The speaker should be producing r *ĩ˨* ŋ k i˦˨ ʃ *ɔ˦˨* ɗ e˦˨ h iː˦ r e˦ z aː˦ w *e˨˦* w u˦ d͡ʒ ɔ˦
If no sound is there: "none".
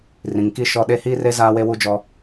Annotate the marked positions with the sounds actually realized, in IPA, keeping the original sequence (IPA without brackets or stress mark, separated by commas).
ĩ˨, ɔ˦˨, e˦